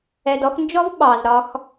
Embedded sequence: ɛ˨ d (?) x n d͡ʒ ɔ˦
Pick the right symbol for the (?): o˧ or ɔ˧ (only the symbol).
ɔ˧